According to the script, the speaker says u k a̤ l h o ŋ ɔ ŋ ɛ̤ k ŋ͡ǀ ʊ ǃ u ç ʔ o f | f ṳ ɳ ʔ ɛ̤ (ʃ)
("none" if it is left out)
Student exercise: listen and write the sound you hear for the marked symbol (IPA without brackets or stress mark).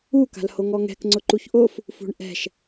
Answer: ʃ